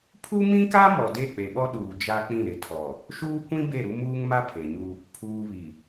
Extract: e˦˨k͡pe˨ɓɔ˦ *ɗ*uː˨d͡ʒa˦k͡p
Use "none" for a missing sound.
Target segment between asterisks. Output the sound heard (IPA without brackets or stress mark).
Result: ɗ